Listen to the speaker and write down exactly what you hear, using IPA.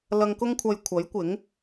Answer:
l ɐ˧ ŋ k ʊ˥ ŋ kʷʰ ɐ˧ j kʷʰ ɐ˨˥ j kʷ ɪ˨˥ ŋ

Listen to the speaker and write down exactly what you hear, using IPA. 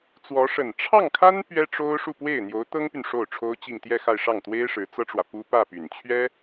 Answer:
t͡s w ɔ˧˥ ʂ ə˨˩ n ʈ͡ʂʰ ɑ˥˩ ŋ kʰ a˥ n p ɥ ɛ˥ ʈ͡ʂ o˥ ʊ̯ ʂ u˥˧ p w e˥˩ ɪ̯ n̪ j o˧˥ ʊ̯ t̪ ɤ˥ ŋ p y˨ n ʂ o˥˩ ʊ̯ ʈ͡ʂʰ o˥ ʊ̯ t͡ɕ i˥˧ ŋ t̪ j ɛ˥˧ x a˥˧ ɪ̯ ʂ ɑ˥˩ ŋ t̪ w e˥ ɪ̯ ʂ ɻ̩˧˥ t͡s ɤ˥ ʈ͡ʂ w ä˨ p u˥ p ä˥˩ p y˨˩ n t͡ɕʰ ɥ ɛ˥

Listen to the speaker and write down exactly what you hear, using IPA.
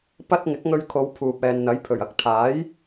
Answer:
p ɐ˥ t̚ ŋ ɪ˨˥ k̚ ŋ ɵ˧ ɥ kʰ o˨˧ w pʰ uː˨ p̚ ɛː˨ n n̪ ɐ˨˥ j pʰ ɵ˨˩ ɥ ɐ˨˥ k̚ t̪ʰ aː˨˥ j

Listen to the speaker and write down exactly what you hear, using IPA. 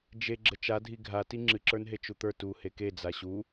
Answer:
d͡ʒ e ɡ͡ǁ ə t͡ʃ a dʱ i ɡʱ a t i ŋ͡ǁ ɨ ǁ ə˞ n ɦ e t͡ʃ u t̪ ə˞ t u h e k e d͡z a ɕ u

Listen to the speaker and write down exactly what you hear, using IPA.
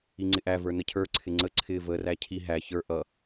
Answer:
i ŋ͡ǀ ɪ ʔ æ v ə˞ n ə cʰ ə˞ ǀʰ ɪ ŋ͡ǀ ə ǀʰ ɪ v ə r æ cʰ i ɦ æ ç ə˞ ʔ ʌ

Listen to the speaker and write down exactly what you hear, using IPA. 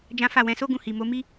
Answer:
d͡ʒ ã˦ f a˦˨ w ɛ̃˨˦ s o˦ ɡ ũ˧ h i˨ m o˨˦ m i˦

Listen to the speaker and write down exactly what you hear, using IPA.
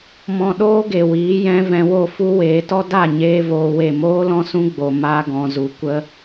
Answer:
m ɔ̃˧ ɗ oː˦ ɡ e˨ w iː˨˦ j ɛ̃˧ v ɛ̃˧ w o˦˨ f u˦ w eː˨˦ t ɔ˦ d a˦˨ ɲ eː˧ v oː˧ w e˦˨ m oː˦ l ɔ̃˦ s ũ˦ ɡ͡b o˧ m a˦ ɡ ɔ̃˧ z u˧ kʷ ə˦

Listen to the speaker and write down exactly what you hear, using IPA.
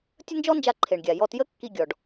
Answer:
tʲ ə˥ n d͡ʒ ɔ˥ n d͡ʒ a˧ ǃʰ e˩ ɳ ɡʲ a˩ j ɔ˧ t j ə˥ kː i˧ ɡʲ ɔ˩ ɖ

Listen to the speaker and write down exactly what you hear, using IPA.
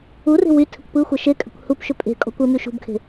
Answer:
u r e̤ w y tʰ ɘ kʷ p ɯ xʷ ɘ ʃ e kʼ ɘ kʷ h u p ʃ ʏ pʼ e̤ kʼ ɔ̤ kʷ ɘ m y ʃ ṳ b kʰ e̤

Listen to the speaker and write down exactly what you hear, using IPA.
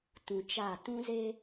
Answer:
t ũ˨ t͡ʃ a˦˨ t ũ˦ z e˦

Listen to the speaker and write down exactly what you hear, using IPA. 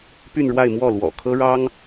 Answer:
p y˥˧ n ɻ w a˥˧ ɪ̯ m w ɔ˥˩ l w ɔ̰˨˩ kʰ ɤ˥ ɻ ɑ˥ ŋ

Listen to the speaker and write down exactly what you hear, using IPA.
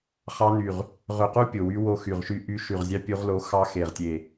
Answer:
χ ɑ˦˥ n y˧˩ ʁ | ʁ ø˧˩ q u˦˥ pʲ o˧˩ w y˦˥ w o˦˥ x y˧˩ ʁ ʃ y˦˥ ʔ y˦˥ ʃ y˧˩ ʁ zʲ ɑ˦˥ pʲ u˦˥ ʁ l o˦˥ x ɑ˦˥ x e˧˩ ʁ tʲ e˧˩

